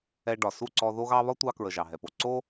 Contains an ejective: no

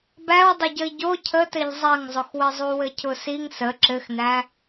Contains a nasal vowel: no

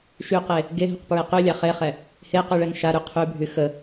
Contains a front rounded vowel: yes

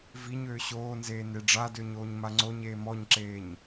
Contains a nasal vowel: no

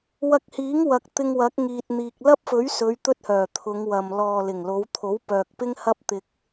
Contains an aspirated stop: yes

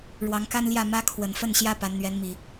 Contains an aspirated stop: yes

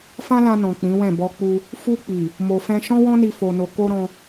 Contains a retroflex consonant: no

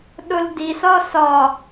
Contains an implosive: yes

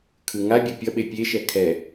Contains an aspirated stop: yes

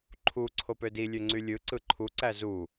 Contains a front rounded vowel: yes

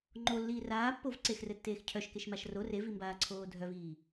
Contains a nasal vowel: no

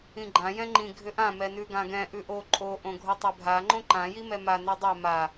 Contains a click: yes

